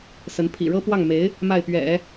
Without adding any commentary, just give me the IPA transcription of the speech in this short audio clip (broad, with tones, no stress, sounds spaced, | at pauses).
s ə˧˥ n pʰ ḭ˨˩ ɻ ɤ˥ p w ɑ˥˩ ŋ m e˧˥ ɪ̯ | m a˥˩ ɪ̯ p ɥ ɛ̰˨˩˦